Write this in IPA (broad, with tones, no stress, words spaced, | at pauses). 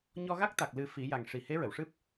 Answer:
ɲɔ˧ɣa˦˥k̚t̪a˨˩k̚ lɨ˨˩ fi˨˩˦ja˨˩ŋ ʂi˨˩ he˧˥ɹə˨˩˨wʂɨ˦˥p̚